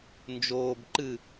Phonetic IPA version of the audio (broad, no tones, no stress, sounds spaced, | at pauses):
n d͡ʒ oː b ǃ ɨ